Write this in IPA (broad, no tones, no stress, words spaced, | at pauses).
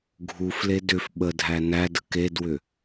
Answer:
ɡʱufle dʏf ɓədʱæ nædə kedwʏ